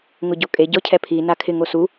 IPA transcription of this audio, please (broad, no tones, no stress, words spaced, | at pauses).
ŋʊɟokʼe ɟɔcʰɛpʰi nakʰɪ ŋosu